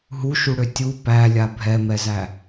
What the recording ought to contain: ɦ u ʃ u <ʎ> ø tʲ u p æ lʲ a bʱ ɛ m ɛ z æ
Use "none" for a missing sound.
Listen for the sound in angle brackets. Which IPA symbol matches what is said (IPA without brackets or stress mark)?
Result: ɽ